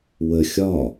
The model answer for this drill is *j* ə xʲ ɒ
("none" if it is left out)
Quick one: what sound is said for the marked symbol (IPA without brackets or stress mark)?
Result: w